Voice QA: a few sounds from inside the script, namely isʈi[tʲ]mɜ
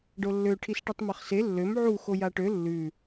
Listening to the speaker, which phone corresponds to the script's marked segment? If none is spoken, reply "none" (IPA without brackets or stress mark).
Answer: tˤ